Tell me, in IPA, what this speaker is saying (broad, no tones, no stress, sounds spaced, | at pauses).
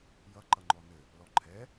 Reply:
j ʌ ǃ ʌ ŋ͡ǃ ɔ n ɘ | l ɔ ǃʰ ɛ